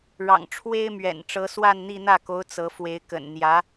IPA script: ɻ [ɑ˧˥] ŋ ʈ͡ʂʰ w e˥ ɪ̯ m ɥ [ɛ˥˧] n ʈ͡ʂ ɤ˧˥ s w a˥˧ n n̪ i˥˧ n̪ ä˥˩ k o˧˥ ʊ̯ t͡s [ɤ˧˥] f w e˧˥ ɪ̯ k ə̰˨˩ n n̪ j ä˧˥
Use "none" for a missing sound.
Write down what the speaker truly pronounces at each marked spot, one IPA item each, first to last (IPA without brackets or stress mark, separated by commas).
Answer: ɑ̰˨˩, ɛ̰˨˩, ɤ˧˥